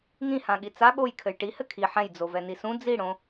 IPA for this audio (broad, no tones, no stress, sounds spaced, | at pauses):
ŋ ĩ h ã ɠ i t͡s a ɠ o j kʰ ɘ j ʈ i h ɘ kʰ i ħ ɛ̃ j d͡z o v ɛ n i s ũ d͡z i ɽ õ